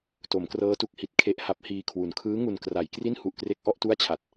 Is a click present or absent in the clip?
absent